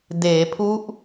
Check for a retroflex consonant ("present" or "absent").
absent